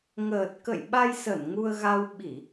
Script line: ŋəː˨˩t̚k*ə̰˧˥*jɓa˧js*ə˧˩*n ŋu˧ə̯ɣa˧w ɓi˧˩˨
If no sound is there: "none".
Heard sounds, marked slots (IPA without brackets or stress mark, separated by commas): ə̰˧˨, ə˧˩